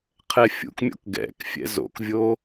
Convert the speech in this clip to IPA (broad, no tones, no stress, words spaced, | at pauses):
qʰɛfʲṵkmʲo̰k ɡɛ̰kfʲɛ̰ zo̰kvʲo